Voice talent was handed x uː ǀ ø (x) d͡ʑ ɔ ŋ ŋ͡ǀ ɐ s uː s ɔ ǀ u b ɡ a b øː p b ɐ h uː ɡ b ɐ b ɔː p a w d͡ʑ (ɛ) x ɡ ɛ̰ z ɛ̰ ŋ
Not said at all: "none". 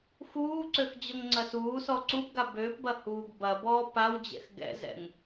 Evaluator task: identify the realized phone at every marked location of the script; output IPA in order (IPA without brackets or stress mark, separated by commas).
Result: x, ɛ̰